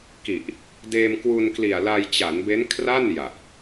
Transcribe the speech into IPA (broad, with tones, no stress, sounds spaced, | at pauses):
k i˨˩ ʔ | d eː˧ m k w u˧ n k l i˨˩ a̯ l a˧ j t͡ɕ a˩˦ n b e˦˥ n kʰ r a˥˩ n j a˨˩ ʔ